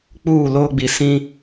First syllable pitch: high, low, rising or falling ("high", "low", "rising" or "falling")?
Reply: falling